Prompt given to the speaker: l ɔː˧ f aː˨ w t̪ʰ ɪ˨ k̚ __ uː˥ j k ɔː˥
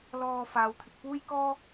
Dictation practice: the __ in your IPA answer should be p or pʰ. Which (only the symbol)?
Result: p